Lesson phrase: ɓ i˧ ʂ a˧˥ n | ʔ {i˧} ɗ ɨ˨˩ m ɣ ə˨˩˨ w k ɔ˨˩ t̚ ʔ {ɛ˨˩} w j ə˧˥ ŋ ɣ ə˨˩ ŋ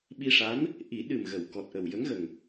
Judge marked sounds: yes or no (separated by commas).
no, no